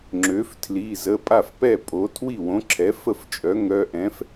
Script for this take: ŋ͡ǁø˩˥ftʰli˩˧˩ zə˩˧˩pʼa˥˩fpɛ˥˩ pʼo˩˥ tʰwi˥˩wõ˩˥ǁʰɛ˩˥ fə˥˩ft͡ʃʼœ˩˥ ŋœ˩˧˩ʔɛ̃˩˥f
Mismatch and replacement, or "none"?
none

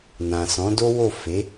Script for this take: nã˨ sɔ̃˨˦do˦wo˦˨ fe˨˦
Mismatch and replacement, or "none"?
none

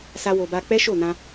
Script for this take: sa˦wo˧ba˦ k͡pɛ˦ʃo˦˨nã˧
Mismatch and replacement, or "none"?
none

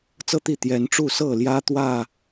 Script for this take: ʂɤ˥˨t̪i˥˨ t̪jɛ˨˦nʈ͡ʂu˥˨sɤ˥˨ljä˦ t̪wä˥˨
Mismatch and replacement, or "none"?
ʂ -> t͡s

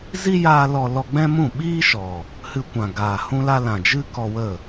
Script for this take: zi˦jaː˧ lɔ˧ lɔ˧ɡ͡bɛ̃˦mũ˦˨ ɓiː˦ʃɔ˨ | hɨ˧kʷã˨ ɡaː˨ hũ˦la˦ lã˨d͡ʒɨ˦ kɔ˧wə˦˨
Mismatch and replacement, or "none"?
none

